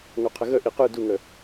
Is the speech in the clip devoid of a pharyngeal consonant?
yes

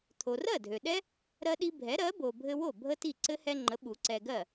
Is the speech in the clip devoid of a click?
no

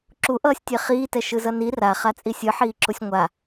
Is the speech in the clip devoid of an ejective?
no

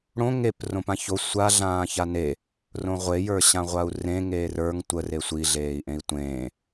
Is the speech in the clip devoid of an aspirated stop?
yes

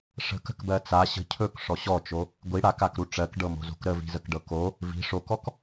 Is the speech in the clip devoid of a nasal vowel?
yes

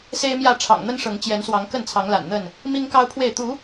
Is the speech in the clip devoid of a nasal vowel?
yes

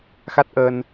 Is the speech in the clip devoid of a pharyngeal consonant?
yes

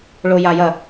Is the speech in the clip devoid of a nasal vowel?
yes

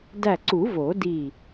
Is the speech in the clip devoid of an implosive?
yes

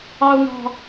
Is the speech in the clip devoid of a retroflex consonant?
yes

